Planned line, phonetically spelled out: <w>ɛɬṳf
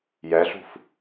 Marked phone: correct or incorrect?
incorrect